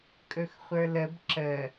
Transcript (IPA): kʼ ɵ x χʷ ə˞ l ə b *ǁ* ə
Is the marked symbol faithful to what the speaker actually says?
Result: yes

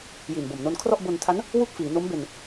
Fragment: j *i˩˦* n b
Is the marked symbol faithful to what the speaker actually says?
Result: no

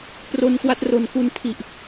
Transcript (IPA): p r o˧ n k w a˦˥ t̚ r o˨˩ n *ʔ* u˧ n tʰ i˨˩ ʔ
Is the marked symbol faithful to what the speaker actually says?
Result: no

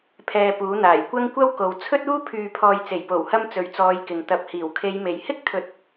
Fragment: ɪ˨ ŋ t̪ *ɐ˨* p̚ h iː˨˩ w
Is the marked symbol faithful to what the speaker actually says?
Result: yes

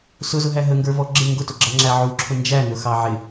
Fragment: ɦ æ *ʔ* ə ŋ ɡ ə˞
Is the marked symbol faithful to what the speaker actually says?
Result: no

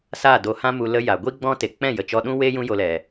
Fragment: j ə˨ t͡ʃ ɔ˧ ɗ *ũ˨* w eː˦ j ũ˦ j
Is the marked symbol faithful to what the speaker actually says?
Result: no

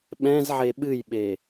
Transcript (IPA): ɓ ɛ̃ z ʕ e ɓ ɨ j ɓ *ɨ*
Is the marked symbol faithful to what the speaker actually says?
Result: no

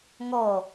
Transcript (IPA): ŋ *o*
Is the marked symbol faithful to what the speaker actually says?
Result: no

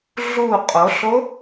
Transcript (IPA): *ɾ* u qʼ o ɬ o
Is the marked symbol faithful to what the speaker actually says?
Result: no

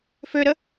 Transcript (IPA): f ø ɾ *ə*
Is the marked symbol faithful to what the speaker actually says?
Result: yes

